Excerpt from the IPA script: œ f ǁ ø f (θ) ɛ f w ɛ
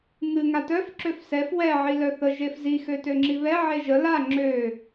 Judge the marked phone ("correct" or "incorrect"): incorrect